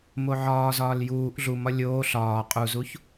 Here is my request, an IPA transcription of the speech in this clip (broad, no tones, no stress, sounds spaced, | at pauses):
m o ʕ ɒː z ɒː l j uː ʔ ɮ u m ɒ lʲ oː ɬ ɒː qʼ u z u ç